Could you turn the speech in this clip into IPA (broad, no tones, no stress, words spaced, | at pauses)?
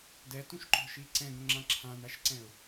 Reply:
dɛtũʃǃɔ̤ʃi ǀɛ̃ɡõŋ͡ǁã ǁʰãn̪aʃǀɛ̃ʊ̯